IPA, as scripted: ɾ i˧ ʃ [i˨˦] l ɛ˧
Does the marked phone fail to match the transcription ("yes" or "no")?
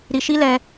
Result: yes